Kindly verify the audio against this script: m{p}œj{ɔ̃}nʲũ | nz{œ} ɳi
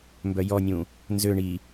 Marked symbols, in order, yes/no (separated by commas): no, no, no